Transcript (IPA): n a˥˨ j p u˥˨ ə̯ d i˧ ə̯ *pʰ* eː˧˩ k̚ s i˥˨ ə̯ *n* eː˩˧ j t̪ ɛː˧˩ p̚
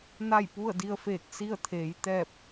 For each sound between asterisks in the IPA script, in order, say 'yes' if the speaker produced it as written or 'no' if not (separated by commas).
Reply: no, no